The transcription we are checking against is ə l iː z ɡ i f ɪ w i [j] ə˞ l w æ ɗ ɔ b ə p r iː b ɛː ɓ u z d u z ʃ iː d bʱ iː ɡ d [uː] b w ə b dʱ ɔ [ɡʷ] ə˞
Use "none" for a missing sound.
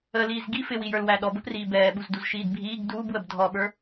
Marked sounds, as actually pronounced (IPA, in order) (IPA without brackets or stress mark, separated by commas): j, uː, ɓ